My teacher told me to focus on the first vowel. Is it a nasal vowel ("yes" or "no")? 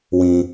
yes